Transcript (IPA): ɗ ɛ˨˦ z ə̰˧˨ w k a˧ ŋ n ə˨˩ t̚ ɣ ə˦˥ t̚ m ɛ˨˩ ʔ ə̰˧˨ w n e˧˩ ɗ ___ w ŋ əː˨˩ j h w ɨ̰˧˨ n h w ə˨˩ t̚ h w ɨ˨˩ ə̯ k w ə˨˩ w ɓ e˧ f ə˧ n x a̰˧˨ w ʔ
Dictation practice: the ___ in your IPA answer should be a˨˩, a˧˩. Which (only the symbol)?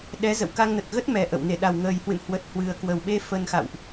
a˨˩